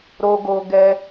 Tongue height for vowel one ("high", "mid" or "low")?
mid